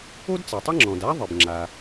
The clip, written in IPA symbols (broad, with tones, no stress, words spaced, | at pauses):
o˥dt͡sa˩tˤɘ˥ŋ͡ǁɔ̃˩d a˥ ðˤɘ˩bŋ͡ǁa˩